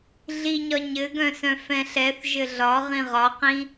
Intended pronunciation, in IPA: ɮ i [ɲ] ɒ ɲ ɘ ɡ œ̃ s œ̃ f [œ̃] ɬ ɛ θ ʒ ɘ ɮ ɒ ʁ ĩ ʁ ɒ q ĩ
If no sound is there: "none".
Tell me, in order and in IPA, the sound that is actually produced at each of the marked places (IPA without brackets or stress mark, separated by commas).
ɲ, ɛ̃